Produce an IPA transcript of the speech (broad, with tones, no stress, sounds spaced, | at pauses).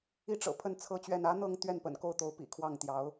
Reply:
i˥ ʈ͡ʂ ɤ̰˨˩ pʰ ə˥˧ n t͡sʰ ɤ˥˧ t͡ɕ ɥ ɛ˥˩ n ä˥ n̪ ɤ˥˧ ŋ t̪ ɥ ɛ˥˩ n p ə̰˨˩ n k o˥˩ ʊ̯ t̪ o˧˥ ʊ̯ p ḭ˨˩ kʰ w ɑ˥˩ ŋ t̪ j ɑ˧˥ ʊ̯